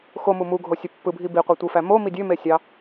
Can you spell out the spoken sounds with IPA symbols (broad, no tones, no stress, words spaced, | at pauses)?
xomu muɡʱosʲø pːɯbʱi biqʷetʷɯfæ momi dʲømesʲɑ